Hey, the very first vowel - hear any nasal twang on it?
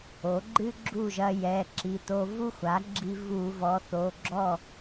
no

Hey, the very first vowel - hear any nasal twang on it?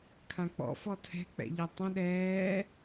yes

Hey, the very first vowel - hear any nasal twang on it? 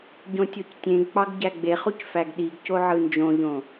yes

